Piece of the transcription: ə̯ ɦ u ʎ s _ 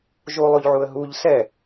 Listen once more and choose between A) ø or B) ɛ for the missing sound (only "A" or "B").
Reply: B